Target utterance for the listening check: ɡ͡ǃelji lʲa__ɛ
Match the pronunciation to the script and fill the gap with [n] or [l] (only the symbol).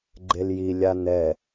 n